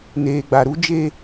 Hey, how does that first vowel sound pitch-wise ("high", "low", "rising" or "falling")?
low